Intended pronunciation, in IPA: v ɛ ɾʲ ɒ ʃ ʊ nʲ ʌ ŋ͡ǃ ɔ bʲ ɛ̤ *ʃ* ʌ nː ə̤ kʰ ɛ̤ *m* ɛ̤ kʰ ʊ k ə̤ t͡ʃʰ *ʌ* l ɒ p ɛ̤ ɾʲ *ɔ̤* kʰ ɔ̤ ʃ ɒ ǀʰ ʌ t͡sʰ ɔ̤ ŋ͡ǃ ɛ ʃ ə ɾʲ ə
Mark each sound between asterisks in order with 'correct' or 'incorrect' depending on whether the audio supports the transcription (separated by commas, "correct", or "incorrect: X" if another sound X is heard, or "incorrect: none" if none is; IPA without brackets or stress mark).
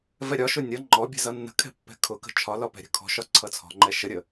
incorrect: z, incorrect: pː, incorrect: ɒ, incorrect: ə̤